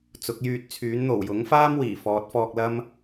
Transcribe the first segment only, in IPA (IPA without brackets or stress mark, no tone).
t͡s